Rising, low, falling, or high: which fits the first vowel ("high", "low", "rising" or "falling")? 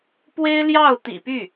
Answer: high